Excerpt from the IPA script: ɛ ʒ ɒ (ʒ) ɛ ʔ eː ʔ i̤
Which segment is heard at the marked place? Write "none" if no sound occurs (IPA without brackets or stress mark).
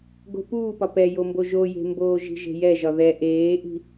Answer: ð